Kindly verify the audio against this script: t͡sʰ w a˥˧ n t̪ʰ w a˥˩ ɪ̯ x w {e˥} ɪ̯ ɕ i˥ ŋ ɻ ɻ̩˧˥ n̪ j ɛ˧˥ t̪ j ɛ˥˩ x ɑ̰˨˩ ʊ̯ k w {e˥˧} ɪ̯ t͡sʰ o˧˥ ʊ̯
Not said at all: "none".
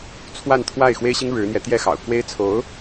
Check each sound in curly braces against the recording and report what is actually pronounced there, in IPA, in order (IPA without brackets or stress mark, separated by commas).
e˥, e˥